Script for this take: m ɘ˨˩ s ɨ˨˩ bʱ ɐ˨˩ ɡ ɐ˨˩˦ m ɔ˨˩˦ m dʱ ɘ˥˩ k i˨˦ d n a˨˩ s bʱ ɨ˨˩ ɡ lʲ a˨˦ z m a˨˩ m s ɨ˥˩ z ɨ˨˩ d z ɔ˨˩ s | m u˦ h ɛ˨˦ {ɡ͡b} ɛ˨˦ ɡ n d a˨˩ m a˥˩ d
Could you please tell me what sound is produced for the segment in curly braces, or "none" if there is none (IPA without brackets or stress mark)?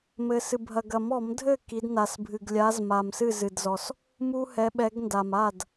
ɓ